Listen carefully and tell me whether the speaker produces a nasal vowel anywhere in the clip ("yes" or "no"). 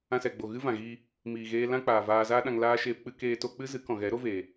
yes